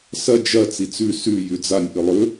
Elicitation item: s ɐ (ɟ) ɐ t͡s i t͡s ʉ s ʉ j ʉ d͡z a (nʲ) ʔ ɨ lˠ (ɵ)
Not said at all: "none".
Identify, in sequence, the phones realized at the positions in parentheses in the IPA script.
d͡ʒ, nʲ, ɵ

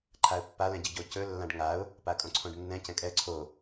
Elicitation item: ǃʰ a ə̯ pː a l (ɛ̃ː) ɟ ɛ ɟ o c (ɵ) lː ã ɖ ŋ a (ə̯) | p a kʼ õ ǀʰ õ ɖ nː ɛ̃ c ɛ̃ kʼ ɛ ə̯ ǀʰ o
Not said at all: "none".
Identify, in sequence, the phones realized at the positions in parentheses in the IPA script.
ɛ̃, ɵ, ʊ̯

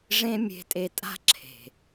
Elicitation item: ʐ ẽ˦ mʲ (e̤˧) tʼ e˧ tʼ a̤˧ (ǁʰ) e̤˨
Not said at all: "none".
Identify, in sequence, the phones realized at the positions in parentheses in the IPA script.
e̤˧, ǁʰ

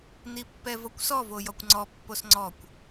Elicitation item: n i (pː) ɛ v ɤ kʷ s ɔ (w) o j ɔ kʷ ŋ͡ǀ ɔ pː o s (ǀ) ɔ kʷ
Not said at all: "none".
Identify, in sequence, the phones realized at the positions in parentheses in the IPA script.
pː, v, ŋ͡ǀ

